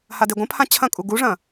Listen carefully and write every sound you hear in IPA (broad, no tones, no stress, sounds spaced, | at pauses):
h a d e ɡʷ ɐ̃ pʰ ã t͡ɕʰ ɐ̃ kʼ u ɡ u ʐ ɐ̃